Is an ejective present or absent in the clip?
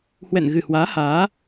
absent